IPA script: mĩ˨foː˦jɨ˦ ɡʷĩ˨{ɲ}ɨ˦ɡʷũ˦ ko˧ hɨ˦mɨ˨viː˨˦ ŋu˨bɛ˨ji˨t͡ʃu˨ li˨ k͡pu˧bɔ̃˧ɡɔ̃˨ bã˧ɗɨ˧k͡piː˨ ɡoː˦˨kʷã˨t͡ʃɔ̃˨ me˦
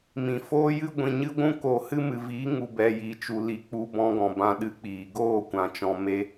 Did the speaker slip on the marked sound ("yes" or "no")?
no